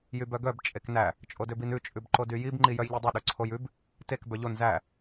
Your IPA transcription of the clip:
j y b œ ɡ œ b t͡ʃʼ e k n æ | t͡ʃʼ o d ø b i n ʉ t͡ʃʼ ʉ b ǃ o d y j i b ŋ͡ǃ i j œ j ʎ y dˤ y ɗ ø ǀʰ o j ʉ b | t e k b œ ʎ o n z æ

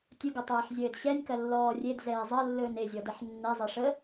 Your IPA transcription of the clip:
tʲ ɵ ɡ ɐ tˤ ɛː ħ zʲ ɘː d ɕ ɛ nʲ k ɐ lː ɔː rʲ e d z ɛː zˤ ɐ lː ɵː n e zʲ ɔ d ɛ ħ nː ɛ zˤ e ʂ ə

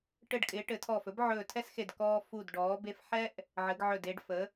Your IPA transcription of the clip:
ʈ ɘ˧˩ ɖ kʼ ɪː˩˧ ʈ ɘ˩˧ tʰ ɔː˧˩ f ɵ˥ b ʕ ɵː˧˩ tʰ ɛ˥ s x e˧˩ d k ɔː˧ f u˧˩ d ɖ ɔː˩˧ b e˧ f ħ ɛ˥ ʔ | ʕ ɘ˩˧ ɡ ʕ ɵ˧˩ d eː˧ ɖ f ə˩˧

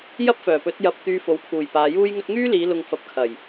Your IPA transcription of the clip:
j ɐ˥ p̚ f œː˨˩ p ɵ˨˥ t̚ j ɐ˧ p̚ t̪ yː˧ f o˨˥ w kʰ uː˨˩ j p aː˨˧ j uː˥ j ŋ ɵ˥ t̚ ŋ yː˥ l iː˨˧ l ʊ˨ ŋ f ɐ˨˥ p̚ kʰ ɐ˨˩ j

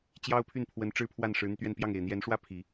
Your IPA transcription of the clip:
t͡ɕ j ɑ˥ ʊ̯ pʰ y˥˩ n pʰ w ə˧˥ n ʈ͡ʂ ɻ̩˥˧ pʰ w a˥˩ n ʂ ɻ̩˧˥ n̪ y˧ t̪ ɥ ɛ˥˧ n p j ɑ˥˩ ŋ e˨˩ ɪ̯ n̪ j ɛ˧˥ n ʂ w ä˥ pʰ i˨˩˦

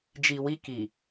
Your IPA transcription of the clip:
d͡ʒ i˨ w i˦ k i˨

